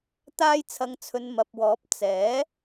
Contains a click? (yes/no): no